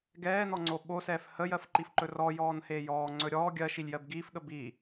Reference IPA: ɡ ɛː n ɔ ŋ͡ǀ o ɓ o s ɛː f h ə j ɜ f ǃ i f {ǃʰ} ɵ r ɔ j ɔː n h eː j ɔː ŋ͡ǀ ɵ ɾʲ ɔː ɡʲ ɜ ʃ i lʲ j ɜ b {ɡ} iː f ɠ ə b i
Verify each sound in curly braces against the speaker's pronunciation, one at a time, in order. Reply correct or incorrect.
incorrect, correct

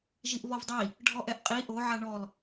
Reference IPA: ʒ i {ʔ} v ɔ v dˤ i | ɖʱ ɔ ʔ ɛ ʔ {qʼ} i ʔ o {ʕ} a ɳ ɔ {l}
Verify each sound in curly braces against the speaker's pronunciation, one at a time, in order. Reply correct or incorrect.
correct, correct, correct, correct

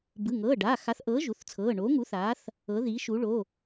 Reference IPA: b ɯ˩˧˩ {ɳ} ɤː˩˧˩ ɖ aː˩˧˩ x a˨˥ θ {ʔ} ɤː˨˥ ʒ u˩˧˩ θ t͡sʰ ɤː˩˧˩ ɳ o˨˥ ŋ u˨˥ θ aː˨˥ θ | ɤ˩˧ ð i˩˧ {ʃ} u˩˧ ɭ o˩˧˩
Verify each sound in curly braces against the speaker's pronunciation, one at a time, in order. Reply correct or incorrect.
incorrect, correct, correct

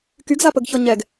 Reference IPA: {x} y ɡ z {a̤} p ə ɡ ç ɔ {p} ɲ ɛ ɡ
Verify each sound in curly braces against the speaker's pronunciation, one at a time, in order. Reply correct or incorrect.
incorrect, incorrect, incorrect

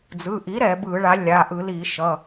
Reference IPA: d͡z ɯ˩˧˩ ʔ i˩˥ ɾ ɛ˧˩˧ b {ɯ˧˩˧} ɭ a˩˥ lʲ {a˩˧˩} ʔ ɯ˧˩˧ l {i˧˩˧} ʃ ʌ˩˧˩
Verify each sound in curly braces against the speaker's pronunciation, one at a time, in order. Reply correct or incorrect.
correct, correct, correct

